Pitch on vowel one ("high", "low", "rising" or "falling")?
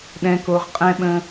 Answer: low